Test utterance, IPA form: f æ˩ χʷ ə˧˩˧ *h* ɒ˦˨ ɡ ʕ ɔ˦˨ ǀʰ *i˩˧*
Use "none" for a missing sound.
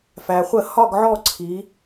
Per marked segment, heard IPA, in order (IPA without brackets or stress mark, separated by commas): h, i˩˧